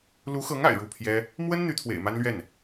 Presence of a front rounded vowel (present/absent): present